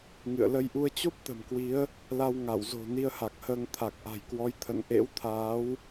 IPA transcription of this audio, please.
ŋ ɨ̰˧˨ ə̯ l ə˧ j ʔ u˧ ə̯ t͡ɕ o˦˥ p̚ t̪ ə̤˨˩ m k w i˨˦ ə̯ | l a˧ w ŋ a˧˩ w z o̤˨˩ n i˧ ə̯ h a˨˩ k̚ h əː˧ ŋ t̪ʰ a˨˩ k̚ ʔ a̤˨˩ j k w ɔ˨˦ j t̪ʰ ə̰˧˨ n ʔ ḛ˧˥ w t̪ʰ aː˨˦ w

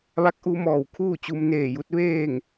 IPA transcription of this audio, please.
ʋ a˧˥ k̚ ʔ u˧ m ɔː˧˩ w kʰ uː˥˨ t͡ɕ u˧ m n eː˧˩ j u˧˥ t̚ ʋ eː˥˨ ŋ

